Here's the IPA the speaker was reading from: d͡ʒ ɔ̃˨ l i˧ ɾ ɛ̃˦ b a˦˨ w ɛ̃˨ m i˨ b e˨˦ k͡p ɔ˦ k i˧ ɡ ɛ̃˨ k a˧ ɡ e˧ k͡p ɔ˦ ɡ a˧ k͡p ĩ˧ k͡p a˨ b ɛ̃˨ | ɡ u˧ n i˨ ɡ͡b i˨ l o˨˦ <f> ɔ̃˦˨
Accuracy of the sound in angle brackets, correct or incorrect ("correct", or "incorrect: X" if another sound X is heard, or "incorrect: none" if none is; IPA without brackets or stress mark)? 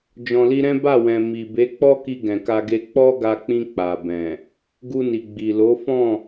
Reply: correct